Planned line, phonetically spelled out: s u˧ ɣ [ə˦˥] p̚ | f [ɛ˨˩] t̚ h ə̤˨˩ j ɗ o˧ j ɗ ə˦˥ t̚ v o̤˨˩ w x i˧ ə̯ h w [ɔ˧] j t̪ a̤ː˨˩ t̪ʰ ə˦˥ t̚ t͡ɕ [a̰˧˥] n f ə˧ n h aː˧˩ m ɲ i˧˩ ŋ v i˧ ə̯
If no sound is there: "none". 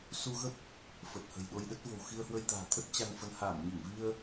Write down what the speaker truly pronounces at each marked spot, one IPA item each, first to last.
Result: ə˦˥, ə˨˩, ə˧, a˧

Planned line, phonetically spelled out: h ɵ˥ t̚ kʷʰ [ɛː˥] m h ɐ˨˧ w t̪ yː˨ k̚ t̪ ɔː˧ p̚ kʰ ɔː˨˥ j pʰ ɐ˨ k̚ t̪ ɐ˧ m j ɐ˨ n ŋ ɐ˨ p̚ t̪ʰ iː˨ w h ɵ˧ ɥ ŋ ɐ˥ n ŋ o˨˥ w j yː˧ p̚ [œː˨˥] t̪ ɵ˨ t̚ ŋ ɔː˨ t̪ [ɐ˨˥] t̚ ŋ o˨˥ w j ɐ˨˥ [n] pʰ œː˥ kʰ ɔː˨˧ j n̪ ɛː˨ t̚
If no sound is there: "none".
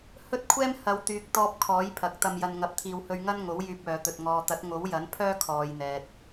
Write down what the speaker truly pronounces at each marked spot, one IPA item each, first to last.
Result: ɛː˥, œː˨, ɐ˨˥, n

